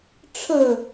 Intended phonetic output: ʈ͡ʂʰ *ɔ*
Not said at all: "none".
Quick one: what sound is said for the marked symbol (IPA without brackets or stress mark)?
ə